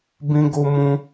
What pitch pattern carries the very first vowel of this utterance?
high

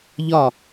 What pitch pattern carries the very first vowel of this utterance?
falling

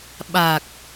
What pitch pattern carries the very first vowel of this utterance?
low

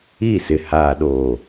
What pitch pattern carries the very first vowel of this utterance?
falling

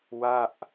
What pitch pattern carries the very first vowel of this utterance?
falling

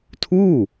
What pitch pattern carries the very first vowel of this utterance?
falling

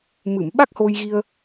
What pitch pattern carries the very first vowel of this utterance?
low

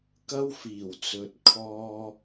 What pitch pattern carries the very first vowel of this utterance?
high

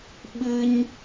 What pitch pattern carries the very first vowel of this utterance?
high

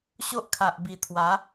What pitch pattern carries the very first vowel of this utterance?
high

